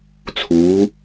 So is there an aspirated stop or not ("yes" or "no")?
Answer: yes